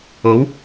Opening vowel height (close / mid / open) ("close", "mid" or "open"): mid